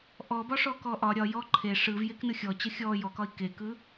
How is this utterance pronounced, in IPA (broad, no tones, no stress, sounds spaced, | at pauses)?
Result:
ʔ ɔ b ɒ ʂ ɔ k ɔ ʔ ɒ ɾʲ ɒ j ɔ ǃʰ e ʂ ɯ v j e k n ɯ xʲ ɔ t͡ɕ ə xʲ ɔ j ɔ k ɒ i̯ k e k ɯ